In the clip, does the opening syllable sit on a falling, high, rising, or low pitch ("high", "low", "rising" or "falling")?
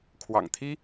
low